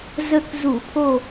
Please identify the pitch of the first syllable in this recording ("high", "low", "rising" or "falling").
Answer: falling